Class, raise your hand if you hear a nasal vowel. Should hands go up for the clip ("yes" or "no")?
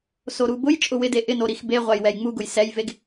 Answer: no